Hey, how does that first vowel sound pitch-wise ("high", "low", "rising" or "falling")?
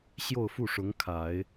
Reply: falling